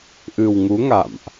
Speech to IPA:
ʔ ɨ˨˩ w ŋ u˨˦ ŋ a̰˧˨ m ʔ

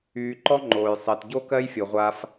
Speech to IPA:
yː˨ ǃ ɔ˥ ŋ͡ǃ oː˩ j sˤ e˩ t ɟ o˥ k ɜ˦ j fʲ o˩ ʁʷ a˨ f

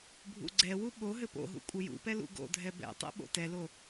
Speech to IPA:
bʱ ṵ ɡ͡ǀ ɛ w u ɓ o ɦ ɘ p o̰ ɦ ṵ kʷʼ ɘ j ṵ p ɛ l ṵ ɡ o̰ dʱ ɛ b ɛ̰ tˤ ɛ̰ ɓ o̰ t ɛ l o

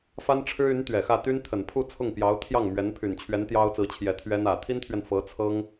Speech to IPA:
f a˥ n ʈ͡ʂʰ ɻ̩˥ y˧˥ n t̪ ɥ ɛ˨˩ x ä˥˩ t̪ y˥ n t̪ʰ ə˨˩ n pʰ u˥˧ t͡sʰ ʊ˥˩ ŋ p j ɑ˧˥ ʊ̯ t̪ʰ j ɑ˥˩ ŋ m ɥ ɛ˧˥ n pʰ y˨˩ n t͡ɕʰ ɥ ɛ˧˥ n t̪ j ɑ˥ ʊ̯ t͡s ɹ̩˧˥ t͡ɕʰ j ɛ˨˩ t̪ʰ ɥ ɛ˥ n ä˨˩ t̪ʰ i˥ n t̪ʰ ɥ ɛ˨ n f ɤ˧˥ t͡sʰ ɤ˥ ŋ

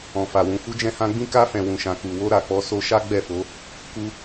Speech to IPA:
ɔ̃˨ f a˨ w ũ˨ f u˧ d͡ʒ ɛ̃˧ h ã˧ ɡ͡b ĩ˦ k a˧ f ɛ̃˨ w ũ˨ ʃ ã˨ k u˨ w o˧ ɾ a˨ k͡p ɔ˧ s o˧ ʃ a˦ ɡ͡b ɛ˦˨ f o˨˦ | k u˧

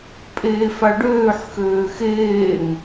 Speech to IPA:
pʼ eː f a ɖ øː ħ x øː x eː ŋ

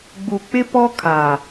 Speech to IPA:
ɡ͡b u˨ k͡p ɪ˦ p ɔ˦ kʰ a˨

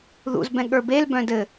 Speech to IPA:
ð ṵ z b ɛ̃ ɠ ə˞ b e l b œ̃ d ɘ

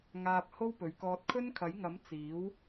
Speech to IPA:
ŋ aː˧ p̚ h o˥ w p ɵ˨˧ ɥ k ɔː˧ t̚ kʰ ɵ˥ n kʰ ɐ˨˥ j ŋ ɐ˨˥ m t͡s iː˨˥ w

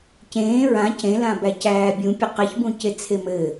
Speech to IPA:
c ẽː ɹ ã c ẽ l ã b æ c æː bʲ ũ pʲ ɘ q ɘ ç b ũ c e t͡sʰ e m ɘ

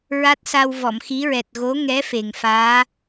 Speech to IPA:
ɹ a˦˥ t̚ s a˧ w v ɔ˨˩˨ m x i˧˥ ɹ ɛ˨˩ t̚ ɣ o˧˥ ŋ ɛ˧˥ f e˨˩ ŋ f aː˧˥

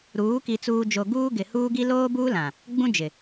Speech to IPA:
ɾ uː˨˦ k i˨ t͡s uː˨ d͡ʒ o˨ ɡ uː˦ ɡ ɪ˨ h uː˦ ɡ i˦ l oː˦ b uː˦ l ã˨ | ɡ͡b ũ˦ d͡ʒ ɪ˨

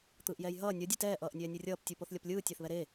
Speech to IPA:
t̪ ɯː ʔ j ɛː j ɦ ʌː nʲ ʌ dʲ e t ɛː ʔ ʌː ʔ nʲ ɛː nʲ ɯ rʲ ʌː p tʲ u p o θ lʲ ʌ p lʲ ɯː tʲ a θ β ɛ ɾ e

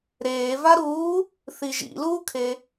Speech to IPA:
ɾ eː v a ɾ uː | θ i ʒ ḭ l uː kʰ e

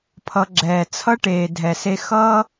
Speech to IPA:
pʰ ʌ˨ ɡ͡ǁ ɛː˩ t͡sʰ ʌ˥ ʈ eː˩ dʱ ɛ˩ s e˦ x ʌ˥

